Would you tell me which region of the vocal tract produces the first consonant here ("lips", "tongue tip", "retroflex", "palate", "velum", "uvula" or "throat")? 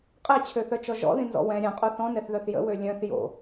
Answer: uvula